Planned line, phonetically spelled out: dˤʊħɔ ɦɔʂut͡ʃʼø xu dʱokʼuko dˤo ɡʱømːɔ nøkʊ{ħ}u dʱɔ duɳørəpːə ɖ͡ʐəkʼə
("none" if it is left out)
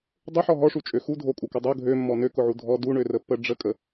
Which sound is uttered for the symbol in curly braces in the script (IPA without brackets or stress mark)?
ʕ